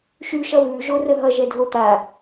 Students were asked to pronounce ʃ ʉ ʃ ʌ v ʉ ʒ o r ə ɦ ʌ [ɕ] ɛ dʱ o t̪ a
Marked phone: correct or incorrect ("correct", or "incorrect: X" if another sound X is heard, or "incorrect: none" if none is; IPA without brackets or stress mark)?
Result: incorrect: ʒ